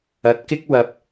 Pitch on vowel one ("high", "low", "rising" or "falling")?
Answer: rising